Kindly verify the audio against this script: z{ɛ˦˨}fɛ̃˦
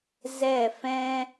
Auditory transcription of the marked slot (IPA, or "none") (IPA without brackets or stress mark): ɛ˦˨